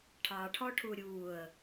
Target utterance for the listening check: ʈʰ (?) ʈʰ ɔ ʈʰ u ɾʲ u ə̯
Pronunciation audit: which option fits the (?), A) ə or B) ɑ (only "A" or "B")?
B